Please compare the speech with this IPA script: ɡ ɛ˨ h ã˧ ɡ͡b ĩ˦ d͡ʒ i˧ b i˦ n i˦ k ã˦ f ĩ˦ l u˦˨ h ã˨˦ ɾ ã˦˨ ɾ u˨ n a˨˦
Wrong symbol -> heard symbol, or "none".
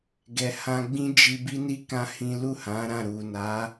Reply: f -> h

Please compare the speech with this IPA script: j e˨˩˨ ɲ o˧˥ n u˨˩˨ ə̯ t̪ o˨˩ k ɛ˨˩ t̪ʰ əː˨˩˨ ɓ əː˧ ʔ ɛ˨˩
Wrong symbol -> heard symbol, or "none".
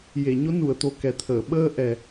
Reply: none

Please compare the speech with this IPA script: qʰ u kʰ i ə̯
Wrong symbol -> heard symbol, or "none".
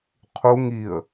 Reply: kʰ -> ŋ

